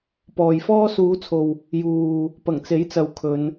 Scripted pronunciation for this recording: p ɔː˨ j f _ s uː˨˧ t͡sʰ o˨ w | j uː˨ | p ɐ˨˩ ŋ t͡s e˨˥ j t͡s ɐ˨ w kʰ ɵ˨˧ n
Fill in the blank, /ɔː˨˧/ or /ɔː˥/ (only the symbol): ɔː˥